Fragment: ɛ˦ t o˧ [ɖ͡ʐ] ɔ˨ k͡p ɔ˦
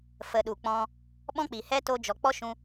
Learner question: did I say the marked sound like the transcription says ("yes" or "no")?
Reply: no